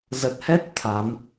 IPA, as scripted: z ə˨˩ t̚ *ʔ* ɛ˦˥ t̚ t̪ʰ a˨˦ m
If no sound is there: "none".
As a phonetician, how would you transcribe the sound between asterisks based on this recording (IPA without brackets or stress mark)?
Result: h